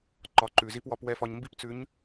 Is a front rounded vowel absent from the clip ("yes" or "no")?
yes